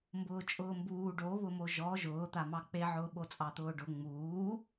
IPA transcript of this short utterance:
m b ʊː t͡ʃʼ ʊː m b uː ɖ o β ʊ m o ʒ ɔ ʒ ʊː t̪ a m ɑ k͡p e ʕ ʊː ɓ o t͡sʼ ɑ t̪ ʊː ɖ ʊ ŋ͡m uː

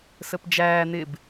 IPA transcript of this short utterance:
s ə p d͡ʒ æː n̪ ɪ b

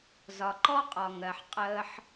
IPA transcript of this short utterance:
z ɒ˨ ǃ ɔ˦ qʼ ɒ˨ ŋ ɜ˨ ħ qʼ əː˧ ħ

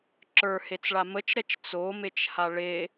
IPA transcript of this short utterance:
ǁ ə˞ h e t͡s ɭ a m ə t͡ʃ ɾ ɛ t͡ʃ t͡s o m e t͡ʃ h a ɭ e

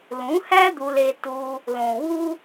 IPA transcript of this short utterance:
l ũ˨˦ h æ˦ d̪ u˧ l e˧ t u˧ | l õ˨ w u˦

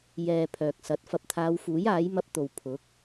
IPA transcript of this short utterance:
j ɛː˨ pʰ œː˨ k̚ s ɐ˨˥ t̚ f ɐ˨ p̚ t̪ʰ aː˨˧ w f uː˨˥ j aː˨˥ j m ɐ˧ p̚ t̪ o˨ w pʰ ʊ˨˥ k̚

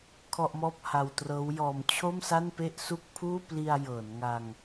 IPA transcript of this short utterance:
kʰ ɔ˥˩ ʔ m ɔː˥˩ p̚ h a˧ w t r ɤː˦˥ w j ɔː˧ m t͡ɕʰ o˥˩ m s a˥˩ n p e˥˩ ʔ s u˥˩ k̚ pʰ uː˥˩ p l i˧ a̯ j ɤː˩˦ n ŋ a˧ ŋ

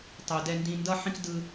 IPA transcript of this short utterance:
tˤ u˨ d ɛ˧ n d ĩ˧ n d ʌ˦ ħ ĩ˦ k d ɯ˦

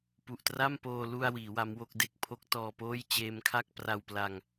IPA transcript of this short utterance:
p u˨˩ ʔ t r a˥˩ m p oː˧ l u˧ a̯ w iː˩˦ w a˦˥ m w o˥˩ k̚ d e˥˩ k̚ pʰ o˦˥ k̚ t ɔː˧ p oː˥˩ j t͡ɕ eː˧ m kʰ a˥˩ k̚ p r a˧ w p l a˧ ŋ

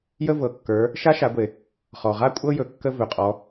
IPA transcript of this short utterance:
j ə˥ v ɤ˩˧ kː ə˞˩˧ | ʃ a˧˥ ʃ a˩˧ ɡʷ e˩ | χ ɔ˩ ʁ a˥ kʷʼ ɤ˥ j ɵ˩ kː ə˧ v ɵ˩ qʼ ɔ˩˧

